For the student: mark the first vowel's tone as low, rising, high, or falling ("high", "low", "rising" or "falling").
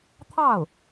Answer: falling